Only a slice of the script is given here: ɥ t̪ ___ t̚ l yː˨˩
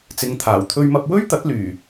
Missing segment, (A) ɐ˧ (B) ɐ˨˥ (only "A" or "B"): B